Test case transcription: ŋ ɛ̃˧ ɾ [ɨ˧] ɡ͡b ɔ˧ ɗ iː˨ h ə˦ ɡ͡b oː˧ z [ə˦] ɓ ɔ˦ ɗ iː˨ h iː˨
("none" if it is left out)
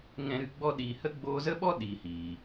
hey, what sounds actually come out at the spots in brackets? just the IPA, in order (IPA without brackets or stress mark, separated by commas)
ɨ˧, ə˦